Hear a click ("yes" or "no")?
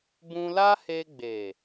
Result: no